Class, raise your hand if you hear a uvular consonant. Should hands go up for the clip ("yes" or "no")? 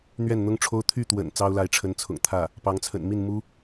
no